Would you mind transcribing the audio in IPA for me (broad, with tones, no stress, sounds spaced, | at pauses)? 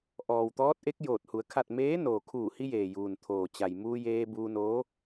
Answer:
ʔ ɔː˩ w t̪ ɔː˧˥ t̚ ʔ e˧˥ k̚ j oː˧˩ t̚ h u˩˧ ə̯ kʰ a˥˨ t̚ m eː˧˥ n oː˩ kʰ uː˧˩ h i˧ j eː˩ j uː˩ n t̪ʰ oː˩ t͡ɕ a˩ j m uː˧ j eː˧ b uː˧ n oː˧˥